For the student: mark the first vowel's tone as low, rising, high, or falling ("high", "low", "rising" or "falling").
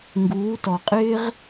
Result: rising